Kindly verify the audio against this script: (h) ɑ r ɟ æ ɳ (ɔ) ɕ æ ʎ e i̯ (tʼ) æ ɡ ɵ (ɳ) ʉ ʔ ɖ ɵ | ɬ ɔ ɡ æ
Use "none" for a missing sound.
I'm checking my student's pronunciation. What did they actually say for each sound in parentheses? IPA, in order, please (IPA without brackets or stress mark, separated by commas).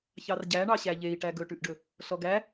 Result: ç, ɑ, ʈ, ʈ